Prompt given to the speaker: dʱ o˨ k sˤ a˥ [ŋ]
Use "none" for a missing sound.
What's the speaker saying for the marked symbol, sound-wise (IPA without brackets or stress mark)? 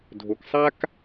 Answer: k